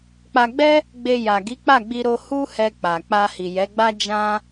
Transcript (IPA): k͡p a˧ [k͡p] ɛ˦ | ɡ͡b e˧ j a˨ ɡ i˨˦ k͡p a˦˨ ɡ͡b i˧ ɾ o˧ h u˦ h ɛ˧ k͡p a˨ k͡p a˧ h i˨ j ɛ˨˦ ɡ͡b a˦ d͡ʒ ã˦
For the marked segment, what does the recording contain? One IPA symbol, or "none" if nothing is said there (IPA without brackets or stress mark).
ɡ͡b